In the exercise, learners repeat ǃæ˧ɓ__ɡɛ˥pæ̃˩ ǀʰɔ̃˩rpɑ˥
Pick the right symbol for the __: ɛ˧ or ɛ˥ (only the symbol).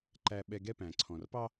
ɛ˧